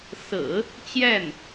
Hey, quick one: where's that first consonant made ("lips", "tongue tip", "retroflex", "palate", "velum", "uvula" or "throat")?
tongue tip